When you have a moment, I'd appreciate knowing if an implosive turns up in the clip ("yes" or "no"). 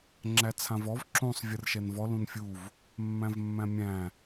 no